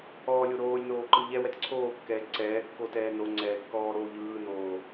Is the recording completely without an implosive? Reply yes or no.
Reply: yes